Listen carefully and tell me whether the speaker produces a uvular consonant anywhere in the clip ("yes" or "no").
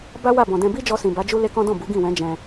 no